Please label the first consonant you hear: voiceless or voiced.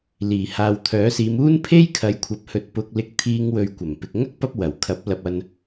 voiced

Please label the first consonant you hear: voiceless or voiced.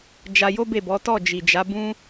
voiced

